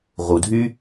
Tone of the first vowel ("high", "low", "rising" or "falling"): low